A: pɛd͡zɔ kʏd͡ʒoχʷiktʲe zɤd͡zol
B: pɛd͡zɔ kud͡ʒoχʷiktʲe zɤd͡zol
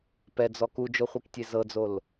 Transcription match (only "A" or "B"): B